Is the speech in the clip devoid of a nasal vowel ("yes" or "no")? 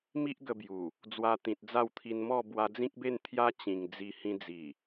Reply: no